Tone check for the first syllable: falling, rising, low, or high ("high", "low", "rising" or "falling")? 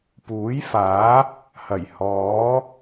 rising